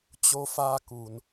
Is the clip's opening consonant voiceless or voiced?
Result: voiceless